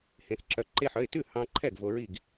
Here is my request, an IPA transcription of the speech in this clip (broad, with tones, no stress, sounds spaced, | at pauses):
h ẽ˧ θ ǁ œ˧ ǃ e˧ ħ œ˩˧˩ ɪ̯ t ʉ˥˩ h ɑ̃˧ ǃʰ ɛ˥˩ ɡ v o˧ ɹ i˥˩ ɡ